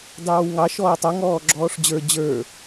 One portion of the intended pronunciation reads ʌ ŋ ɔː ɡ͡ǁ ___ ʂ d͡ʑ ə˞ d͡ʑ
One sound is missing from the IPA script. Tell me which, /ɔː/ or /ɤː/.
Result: ɔː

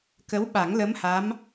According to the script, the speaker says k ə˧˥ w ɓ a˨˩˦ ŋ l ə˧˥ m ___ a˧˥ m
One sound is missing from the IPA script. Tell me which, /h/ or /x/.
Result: h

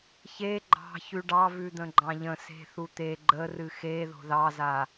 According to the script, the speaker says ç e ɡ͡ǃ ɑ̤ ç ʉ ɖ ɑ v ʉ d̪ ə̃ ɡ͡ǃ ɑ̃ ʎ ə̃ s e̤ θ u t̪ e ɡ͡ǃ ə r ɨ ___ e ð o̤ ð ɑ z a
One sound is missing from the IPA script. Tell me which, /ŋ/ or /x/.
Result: x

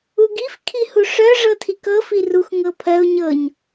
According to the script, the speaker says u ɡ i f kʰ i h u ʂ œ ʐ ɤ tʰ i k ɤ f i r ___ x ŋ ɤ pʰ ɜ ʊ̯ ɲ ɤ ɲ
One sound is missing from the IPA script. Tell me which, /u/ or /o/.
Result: u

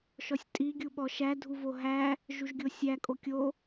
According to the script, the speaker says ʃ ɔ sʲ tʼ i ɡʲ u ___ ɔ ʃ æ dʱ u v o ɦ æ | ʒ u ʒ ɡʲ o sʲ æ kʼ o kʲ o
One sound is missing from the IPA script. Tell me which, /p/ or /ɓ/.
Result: ɓ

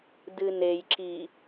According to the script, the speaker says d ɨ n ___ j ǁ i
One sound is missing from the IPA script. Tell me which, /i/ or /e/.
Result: e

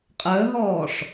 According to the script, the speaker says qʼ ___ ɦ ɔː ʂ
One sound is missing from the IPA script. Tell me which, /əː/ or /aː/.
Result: əː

